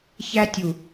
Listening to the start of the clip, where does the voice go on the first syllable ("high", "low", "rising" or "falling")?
high